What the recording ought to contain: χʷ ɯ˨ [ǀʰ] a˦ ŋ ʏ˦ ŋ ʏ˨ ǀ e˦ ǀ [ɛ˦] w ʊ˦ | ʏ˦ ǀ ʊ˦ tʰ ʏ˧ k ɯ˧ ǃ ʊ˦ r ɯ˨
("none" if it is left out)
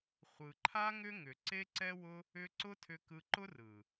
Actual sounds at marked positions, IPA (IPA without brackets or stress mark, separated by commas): ǃʰ, ɛ˦